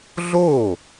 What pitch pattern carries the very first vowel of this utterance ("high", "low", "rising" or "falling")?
falling